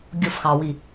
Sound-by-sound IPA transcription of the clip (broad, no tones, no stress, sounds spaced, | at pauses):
ɡʲ ʊ f x ɑ w i